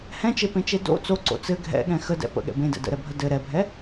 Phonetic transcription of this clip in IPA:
hɛ̃t͡ʃepẽt͡ʃe do̰ t͡soǀo̰ t͡sɘ ɡʱɛ̰ɠɛ̃ xədɛ̰ pə̰ɠɛ̰ bẽdɛ̰ də̰ɾɛbʱə dɘ ɾɛbʱɛ

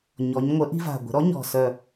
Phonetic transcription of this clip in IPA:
ɲɔ˩˧ɲŋʷə˨˥ ʔi̤˦va̤˨˩ ɡʷə̤˩˧ɾɔ˨˥ɲɔ̤˨˩sœ˨˩

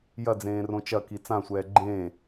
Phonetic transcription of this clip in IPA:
jɐd͡zẽː rõt͡ʃɐki t͡sãsʷɛː ɡ͡ǃẽː

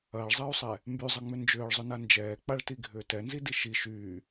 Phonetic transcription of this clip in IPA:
ɐːɭzˤɐːu̯sˤɛ | mbyzˤɐŋ͡mʏ nd͡ʒʏːɭzˤʏna nd͡ʒɛːk͡paɭtiɡʱʏː tɛnzidi ʃi ʃyː

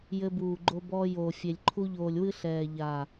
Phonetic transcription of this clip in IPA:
jɘ˧buː˨ɡ͡ǃo˧bɔː˧ joː˨fʲe˨lʲǃʰu˧ʎoː˨lʲ wɨ˦ ɬɛː˨ʎaː˨

